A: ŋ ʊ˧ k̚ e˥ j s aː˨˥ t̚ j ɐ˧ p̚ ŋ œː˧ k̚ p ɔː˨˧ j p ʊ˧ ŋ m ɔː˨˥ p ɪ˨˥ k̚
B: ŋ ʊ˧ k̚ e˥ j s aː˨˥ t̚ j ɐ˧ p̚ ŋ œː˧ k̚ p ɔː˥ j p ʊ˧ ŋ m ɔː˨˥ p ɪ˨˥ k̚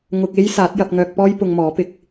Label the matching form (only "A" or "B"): B